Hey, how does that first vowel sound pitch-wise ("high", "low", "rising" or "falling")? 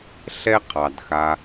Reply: high